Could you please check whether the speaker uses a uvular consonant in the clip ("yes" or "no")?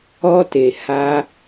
no